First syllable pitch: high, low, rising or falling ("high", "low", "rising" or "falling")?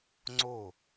falling